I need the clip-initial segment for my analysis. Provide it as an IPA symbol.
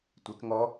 tʷ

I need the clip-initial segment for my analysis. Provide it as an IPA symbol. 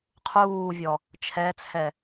qʰ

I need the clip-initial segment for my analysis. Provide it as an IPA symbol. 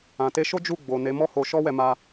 ã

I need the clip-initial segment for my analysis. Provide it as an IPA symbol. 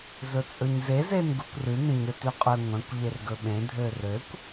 z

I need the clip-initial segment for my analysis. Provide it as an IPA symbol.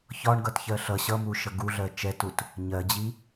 ç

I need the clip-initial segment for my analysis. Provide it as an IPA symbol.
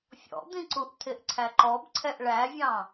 fʲ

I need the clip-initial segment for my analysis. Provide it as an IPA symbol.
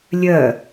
lʲ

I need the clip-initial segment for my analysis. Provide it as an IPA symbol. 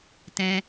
t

